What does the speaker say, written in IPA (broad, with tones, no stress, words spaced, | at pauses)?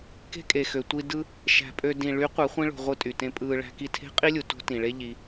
ke̤˦kʼe˨xø˨ tʷi˧ dɯ˧ | ʃæ̤˨pʼø˧ dĩ˨ ɭy˨˦ qʷe˨˦χʷĩ˦ɭo̤˧ ʁʷɯ˧tʼy˨tẽ˧pʼɯː˧ ɭæ̤˧ki˧ tʰe̤˦qʼi˦lʲu˨ to̤˦ tĩ˨ɭe˦ ʎi˧